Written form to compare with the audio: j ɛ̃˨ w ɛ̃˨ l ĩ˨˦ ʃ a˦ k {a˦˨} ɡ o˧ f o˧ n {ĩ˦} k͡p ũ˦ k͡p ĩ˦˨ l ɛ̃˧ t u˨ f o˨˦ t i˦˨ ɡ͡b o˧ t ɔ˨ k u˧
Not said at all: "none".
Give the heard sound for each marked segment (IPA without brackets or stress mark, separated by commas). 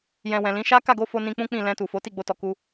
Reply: a˦˨, ĩ˧